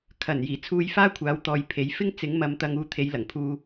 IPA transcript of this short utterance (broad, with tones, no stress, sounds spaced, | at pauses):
kʰ ɐ˨˩ n j iː˨˩ t͡sʰ uː˧ j f aː˥ kʷʰ aː˨˥ w t̪ ɔː˨ j pʰ e˨˥ j f ɪ˥ ŋ t͡s ɪ˨˥ ŋ m ɐ˨˧ m t̪ ɐ˧ ŋ uː˧ t̪ʰ e˨˧ j l ɐ˨˩ ŋ pʰ uː˧